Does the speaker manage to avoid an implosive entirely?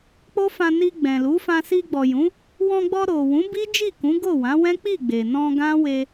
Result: yes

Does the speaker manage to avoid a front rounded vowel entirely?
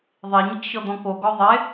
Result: yes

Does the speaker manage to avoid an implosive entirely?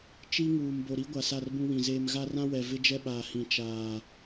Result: no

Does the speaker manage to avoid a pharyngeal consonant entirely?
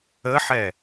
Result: no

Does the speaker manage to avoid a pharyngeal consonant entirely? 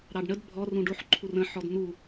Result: no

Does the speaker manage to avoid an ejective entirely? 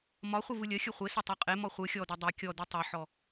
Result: no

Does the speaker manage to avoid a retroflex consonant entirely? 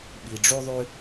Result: no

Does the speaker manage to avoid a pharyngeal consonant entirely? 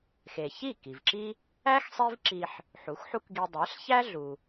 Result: no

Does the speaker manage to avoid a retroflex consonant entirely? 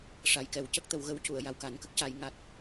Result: no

